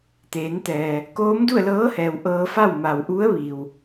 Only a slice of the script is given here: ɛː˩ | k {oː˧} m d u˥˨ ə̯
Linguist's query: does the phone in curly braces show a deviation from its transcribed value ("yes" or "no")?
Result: yes